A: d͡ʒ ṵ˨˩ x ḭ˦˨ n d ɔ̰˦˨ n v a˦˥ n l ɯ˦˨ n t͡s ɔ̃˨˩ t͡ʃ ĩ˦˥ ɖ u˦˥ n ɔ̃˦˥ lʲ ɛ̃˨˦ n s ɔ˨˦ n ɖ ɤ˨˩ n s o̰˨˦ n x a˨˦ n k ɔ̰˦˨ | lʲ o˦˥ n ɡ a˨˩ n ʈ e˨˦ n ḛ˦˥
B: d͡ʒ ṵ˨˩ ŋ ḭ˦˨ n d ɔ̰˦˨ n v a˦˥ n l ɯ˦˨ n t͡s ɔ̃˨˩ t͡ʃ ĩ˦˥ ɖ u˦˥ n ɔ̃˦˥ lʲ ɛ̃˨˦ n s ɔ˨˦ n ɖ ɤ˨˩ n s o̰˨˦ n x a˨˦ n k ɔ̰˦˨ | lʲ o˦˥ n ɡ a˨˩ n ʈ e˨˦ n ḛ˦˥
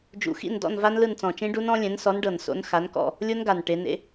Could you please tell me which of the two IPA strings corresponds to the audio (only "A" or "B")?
A